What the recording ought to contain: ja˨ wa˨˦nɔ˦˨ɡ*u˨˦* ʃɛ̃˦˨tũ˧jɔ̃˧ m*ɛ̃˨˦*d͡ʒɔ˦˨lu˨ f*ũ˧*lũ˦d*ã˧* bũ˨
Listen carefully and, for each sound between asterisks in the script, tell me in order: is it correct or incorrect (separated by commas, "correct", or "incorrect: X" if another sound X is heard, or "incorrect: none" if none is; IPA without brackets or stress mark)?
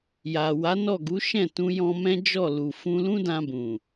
correct, incorrect: ɛ̃˦, correct, correct